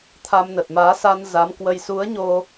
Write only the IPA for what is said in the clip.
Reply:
t̪ʰ a˧ m n ə˨˩ t̚ m aː˨˦ s a˧ n z a˨˦ m k w ə˧ j s u˨˦ ə̯ ɲ o˧

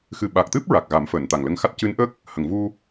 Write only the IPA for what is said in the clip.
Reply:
x ɨ˨˩ ɓ a˨˩ k̚ t̪ ɨ˦˥ p̚ ɹ a˨˩ k̚ ɣ a˨˩˦ m f əː˨˩˨ n t̪ a˨˩ ŋ l ə˧ ŋ x a˦˥ t̚ c ɨ˧˥ n ʔ ə˦˥ k̚ | h ə˨˩˨ ŋ v u˧

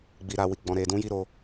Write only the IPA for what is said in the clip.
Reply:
ɡ͡b i˧ ɾ a˧ w i˧ ɡ͡b ɔ̃˦ ɾ e˧ d ũ˦ j i˦ ɾ o˧

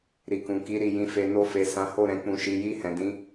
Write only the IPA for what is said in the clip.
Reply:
ɾ i˨ k ũ˨ k i˨˦ ɾ i˦˨ j ĩ˨˦ f e˧ n o˧ f e˨ s ã˨˦ h o˦˨ ɾ ɛ̃˨ k͡p ũ˨ ʃ i˨ j i˧ h ɛ̃˨ d ĩ˨˦

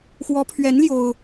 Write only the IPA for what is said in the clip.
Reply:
x w ɔ˧˥ pʰ ɥ ɛ˧˥ n l j o˥ ʊ̯

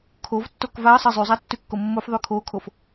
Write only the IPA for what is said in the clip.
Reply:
kʰ o v tː o k v a ɐ̯ sˤ ɛ zˤ y zˤ a tː y kː o mː o f ðˤ y kʰ o kʰ o f

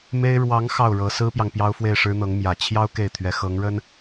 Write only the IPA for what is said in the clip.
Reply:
m e˥ ɪ̯ ɻ w ɑ˧˥ ŋ x ɑ˥˩ ʊ̯ ɻ ɤ˧˥ s ɹ̩˥ p j ɑ˨ ŋ p j ɑ˥ ʊ̯ f w e˥˩ ɪ̯ ʂ ɻ̩˥ n̪ ɤ˧˥ ŋ m j ä˨˩ t͡ɕʰ j ɑ˥ ʊ̯ k e˥˩ ɪ̯ t̪ʰ ɥ ɛ˧˥ x ɤ˧˥ ŋ ɻ ə˥ n

